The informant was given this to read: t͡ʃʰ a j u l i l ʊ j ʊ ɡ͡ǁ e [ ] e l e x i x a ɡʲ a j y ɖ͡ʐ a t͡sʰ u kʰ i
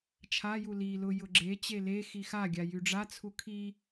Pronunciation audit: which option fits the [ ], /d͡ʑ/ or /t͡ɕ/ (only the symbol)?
t͡ɕ